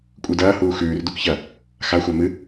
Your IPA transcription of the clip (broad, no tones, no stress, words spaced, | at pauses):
kʷʼɨdɐːhuː xʉːr dukçɐ | xa xʷamɨ